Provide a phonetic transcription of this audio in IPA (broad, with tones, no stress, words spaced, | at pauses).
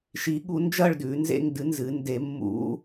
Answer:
ʃi˨˦ɠu˨˦ nd͡ʒɐ˥˧ɭdʉ˨˦nzḛ˥˧ŋ dɨ˨˦ nzɨ˨˦nde˨˦ mːṵ˨˦